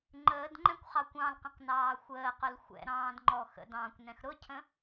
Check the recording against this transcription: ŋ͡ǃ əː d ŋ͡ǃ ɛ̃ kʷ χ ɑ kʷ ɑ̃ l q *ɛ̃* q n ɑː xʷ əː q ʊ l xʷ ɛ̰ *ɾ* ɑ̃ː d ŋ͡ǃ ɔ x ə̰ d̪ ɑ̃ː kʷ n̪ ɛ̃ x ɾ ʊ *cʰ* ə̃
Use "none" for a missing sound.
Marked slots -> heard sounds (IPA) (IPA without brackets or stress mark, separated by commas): ə̃, ɾ, cʰ